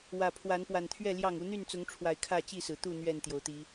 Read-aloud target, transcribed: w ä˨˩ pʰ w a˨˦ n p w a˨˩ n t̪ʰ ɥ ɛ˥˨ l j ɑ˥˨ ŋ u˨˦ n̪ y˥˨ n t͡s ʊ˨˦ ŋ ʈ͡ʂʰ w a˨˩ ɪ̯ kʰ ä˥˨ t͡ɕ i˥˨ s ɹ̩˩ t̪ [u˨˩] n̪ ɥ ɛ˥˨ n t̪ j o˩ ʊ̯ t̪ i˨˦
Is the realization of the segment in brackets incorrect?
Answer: yes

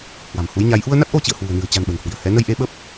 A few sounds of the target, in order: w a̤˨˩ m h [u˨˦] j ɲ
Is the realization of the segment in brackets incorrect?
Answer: no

